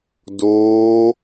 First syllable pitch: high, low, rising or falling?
high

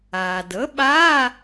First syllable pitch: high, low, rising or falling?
low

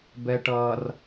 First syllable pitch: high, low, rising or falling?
low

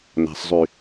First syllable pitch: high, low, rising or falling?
low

